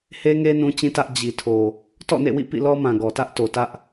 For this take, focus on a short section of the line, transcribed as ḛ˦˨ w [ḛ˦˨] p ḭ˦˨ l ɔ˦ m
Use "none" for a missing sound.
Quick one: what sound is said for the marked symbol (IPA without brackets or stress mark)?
ḭ˦˨